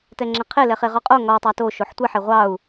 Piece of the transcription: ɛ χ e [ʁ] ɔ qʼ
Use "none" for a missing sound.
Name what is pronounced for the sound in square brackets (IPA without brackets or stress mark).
ʁ